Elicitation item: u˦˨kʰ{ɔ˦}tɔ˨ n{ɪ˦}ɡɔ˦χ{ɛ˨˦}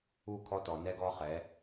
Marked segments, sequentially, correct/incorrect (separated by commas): correct, incorrect, correct